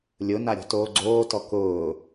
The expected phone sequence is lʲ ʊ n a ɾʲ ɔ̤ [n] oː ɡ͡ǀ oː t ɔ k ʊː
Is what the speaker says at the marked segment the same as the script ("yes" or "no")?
no